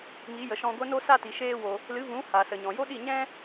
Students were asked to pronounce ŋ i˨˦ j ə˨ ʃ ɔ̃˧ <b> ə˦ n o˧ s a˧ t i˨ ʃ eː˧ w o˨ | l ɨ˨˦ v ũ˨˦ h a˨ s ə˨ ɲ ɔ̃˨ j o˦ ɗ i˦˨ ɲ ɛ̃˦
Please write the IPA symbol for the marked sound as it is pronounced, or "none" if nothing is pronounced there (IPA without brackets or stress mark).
ɡʷ